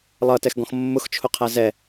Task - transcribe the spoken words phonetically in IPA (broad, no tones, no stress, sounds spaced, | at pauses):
lˠ ʌ t ɛ x ɡ ɔ̃ x mː ʊ x t͡ʃʰ ʊ qʰ æ z ɛ